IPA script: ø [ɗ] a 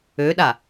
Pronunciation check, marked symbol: correct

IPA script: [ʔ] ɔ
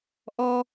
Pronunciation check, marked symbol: correct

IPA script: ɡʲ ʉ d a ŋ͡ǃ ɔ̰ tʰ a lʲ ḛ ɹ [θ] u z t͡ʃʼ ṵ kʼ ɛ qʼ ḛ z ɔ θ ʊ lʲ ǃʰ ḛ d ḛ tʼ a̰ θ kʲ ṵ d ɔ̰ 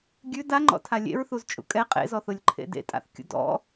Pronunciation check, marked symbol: correct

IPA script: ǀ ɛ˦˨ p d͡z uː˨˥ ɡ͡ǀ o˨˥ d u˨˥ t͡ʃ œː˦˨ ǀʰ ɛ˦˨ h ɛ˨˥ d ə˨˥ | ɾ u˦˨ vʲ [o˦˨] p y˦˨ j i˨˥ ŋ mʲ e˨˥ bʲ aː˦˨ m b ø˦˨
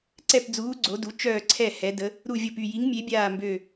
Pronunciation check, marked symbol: correct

